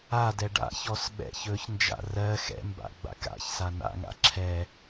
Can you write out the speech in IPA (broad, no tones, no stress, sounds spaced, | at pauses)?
a d ɛ ɖ a̰ ç ɔ s ɓ ɛ̰ ç ɵ ç n d͡ʒ a̰ r ɜ x ɛ̰ m b a̰ ɡ͡b a̰ k a̰ ç s a n a̰ ŋ a̰ ǁʰ ɛ